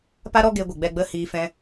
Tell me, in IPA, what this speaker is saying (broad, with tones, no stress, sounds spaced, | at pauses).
p a˦ ɾ ɔ˦ ɡ e˧ ɡʷ ə˨ ɡ͡b ɛ˧ ɡ͡b ə˦˨ h iː˧ f ɛ̃˧